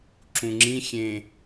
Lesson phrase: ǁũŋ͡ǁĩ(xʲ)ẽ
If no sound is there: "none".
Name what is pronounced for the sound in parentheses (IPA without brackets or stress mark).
xʲ